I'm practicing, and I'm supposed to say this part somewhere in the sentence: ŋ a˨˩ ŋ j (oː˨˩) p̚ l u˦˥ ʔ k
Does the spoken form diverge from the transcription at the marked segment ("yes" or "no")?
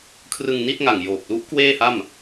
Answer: no